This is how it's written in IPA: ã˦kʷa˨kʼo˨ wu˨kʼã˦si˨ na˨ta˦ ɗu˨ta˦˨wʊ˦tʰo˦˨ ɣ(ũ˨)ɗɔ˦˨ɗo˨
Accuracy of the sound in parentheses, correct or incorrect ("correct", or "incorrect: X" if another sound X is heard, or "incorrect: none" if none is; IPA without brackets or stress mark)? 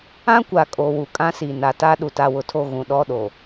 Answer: correct